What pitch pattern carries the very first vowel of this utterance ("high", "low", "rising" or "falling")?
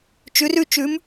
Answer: rising